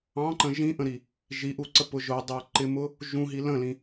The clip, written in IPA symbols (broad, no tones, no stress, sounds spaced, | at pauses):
ɑ̃ ǃ ə̃ ʒ ĩ ʔ ə̃ ɾ i | ʒ i ʔ u ǀ ə p ʊ ʒ ʊ dˤ ə˞ ǃ ɪ m ʊ | ʒ ũ ɦ i l ə̃ l ĩ